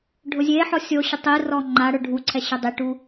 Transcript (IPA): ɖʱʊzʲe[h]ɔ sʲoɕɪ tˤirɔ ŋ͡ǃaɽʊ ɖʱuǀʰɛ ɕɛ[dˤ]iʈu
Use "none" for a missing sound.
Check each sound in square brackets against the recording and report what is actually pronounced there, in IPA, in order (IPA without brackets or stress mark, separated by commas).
ħ, dˤ